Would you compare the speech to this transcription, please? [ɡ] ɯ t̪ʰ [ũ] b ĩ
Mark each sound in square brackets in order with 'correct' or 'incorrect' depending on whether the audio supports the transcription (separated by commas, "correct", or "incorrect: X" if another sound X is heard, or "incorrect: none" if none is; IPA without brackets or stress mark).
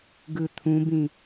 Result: correct, correct